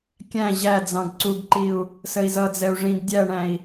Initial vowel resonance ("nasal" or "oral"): nasal